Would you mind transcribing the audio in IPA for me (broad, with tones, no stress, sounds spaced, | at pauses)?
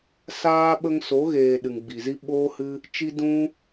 s aː˦ ɓ ə˧ ŋ s o˨˦ ɣ eː˨ ɗ ɨ˨ ŋ ɡ͡b i˨ z i˦ ɓ oː˦ h ɨ˦ | t͡ʃ i˦ d ũ˦